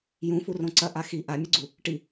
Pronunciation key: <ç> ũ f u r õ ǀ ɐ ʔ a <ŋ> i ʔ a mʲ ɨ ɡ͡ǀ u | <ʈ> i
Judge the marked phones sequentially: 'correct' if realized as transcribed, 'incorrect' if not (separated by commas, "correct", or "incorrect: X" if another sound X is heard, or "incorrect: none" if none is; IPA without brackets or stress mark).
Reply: incorrect: j, incorrect: x, correct